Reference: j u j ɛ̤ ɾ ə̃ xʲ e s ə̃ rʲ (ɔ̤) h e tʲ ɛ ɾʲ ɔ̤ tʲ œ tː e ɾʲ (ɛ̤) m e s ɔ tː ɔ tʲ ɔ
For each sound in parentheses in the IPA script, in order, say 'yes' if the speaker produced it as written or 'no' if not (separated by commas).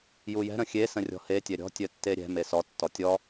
yes, yes